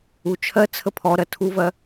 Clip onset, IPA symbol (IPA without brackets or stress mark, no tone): u